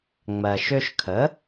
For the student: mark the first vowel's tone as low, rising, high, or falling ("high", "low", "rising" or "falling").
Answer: low